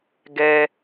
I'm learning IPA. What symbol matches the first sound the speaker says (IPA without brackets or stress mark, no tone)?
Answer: ɡ